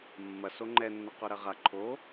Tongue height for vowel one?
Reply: low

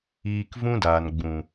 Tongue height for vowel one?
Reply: high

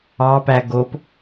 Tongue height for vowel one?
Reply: low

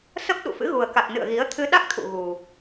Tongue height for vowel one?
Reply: mid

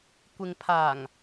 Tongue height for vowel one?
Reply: high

